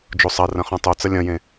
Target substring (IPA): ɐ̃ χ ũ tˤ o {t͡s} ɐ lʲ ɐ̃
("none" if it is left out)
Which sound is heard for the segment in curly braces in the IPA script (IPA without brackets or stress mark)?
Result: t͡s